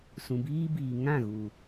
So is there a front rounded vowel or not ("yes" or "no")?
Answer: no